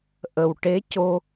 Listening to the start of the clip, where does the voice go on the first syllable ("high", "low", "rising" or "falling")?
low